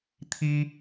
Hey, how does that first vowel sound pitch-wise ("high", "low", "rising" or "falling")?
high